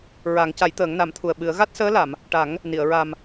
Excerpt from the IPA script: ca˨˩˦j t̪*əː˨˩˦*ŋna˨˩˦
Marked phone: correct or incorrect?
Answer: correct